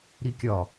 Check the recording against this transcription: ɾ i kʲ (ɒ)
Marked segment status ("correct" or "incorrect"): correct